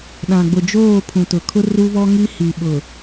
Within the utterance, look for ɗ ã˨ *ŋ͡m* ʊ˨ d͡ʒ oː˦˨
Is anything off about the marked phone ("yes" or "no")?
yes